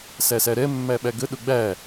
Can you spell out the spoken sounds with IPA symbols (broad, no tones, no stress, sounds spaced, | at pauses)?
s æ s æ ɾ ɛ mː æ ɓ æ ɡ ə ɗ ʊ ɡ͡b æ